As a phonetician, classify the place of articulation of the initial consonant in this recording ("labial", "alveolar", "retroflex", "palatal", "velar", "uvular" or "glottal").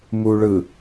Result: labial